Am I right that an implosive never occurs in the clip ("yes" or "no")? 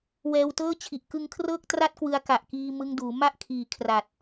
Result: yes